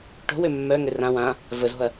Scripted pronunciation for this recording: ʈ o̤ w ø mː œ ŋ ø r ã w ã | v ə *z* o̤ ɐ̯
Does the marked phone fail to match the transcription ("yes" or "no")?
no